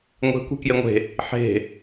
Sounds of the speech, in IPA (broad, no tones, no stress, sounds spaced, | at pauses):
ŋʷ e̤ kʷ e̤ k j e ŋʷ e̤ | ħ e̤